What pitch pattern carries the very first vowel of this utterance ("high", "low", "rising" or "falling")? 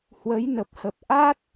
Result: rising